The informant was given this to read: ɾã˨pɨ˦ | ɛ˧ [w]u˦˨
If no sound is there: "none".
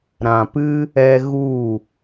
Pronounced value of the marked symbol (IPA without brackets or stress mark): ɣ